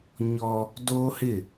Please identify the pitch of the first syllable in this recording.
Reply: high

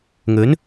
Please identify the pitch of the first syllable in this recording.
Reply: rising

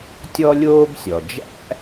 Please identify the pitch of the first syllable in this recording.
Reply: high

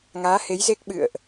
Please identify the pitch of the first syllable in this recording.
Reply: rising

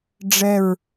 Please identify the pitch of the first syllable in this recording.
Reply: falling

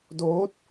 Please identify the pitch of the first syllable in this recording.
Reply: rising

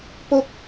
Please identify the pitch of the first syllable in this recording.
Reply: high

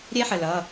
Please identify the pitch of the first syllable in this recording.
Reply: high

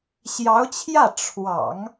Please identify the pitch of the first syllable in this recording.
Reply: rising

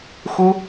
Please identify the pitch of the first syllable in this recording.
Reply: high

